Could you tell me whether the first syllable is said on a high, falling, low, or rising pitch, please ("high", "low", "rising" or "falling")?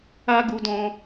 high